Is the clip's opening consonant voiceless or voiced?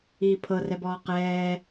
voiceless